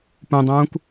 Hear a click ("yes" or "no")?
no